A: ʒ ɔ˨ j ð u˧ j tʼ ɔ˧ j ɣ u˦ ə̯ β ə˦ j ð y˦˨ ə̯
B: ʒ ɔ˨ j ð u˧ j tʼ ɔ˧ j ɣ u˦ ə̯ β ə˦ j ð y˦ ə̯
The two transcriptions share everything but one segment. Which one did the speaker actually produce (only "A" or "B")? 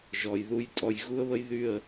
A